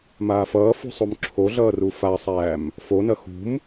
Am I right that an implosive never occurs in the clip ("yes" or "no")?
yes